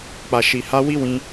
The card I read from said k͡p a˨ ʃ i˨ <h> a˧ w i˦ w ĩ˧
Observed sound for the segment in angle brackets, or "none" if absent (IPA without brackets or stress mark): h